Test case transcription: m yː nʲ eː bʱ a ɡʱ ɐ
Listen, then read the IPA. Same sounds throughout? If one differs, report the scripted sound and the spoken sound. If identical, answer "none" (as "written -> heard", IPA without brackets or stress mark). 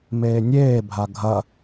yː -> eː